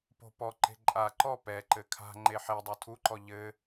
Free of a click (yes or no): no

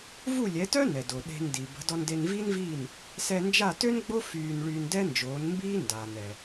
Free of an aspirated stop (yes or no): yes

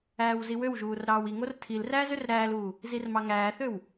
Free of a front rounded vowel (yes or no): no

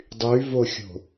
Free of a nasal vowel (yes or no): yes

